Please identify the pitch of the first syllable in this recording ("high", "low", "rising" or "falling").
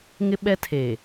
high